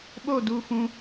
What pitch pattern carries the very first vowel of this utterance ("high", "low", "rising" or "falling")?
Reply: falling